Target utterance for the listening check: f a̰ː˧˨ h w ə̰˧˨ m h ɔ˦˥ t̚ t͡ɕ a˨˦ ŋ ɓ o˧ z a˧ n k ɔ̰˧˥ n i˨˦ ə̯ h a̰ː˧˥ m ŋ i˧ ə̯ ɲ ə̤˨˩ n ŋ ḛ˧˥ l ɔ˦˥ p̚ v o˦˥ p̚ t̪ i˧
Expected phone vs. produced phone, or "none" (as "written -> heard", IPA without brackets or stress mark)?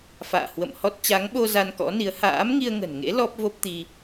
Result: ɲ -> ŋ